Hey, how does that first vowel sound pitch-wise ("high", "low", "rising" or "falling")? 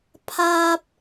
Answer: high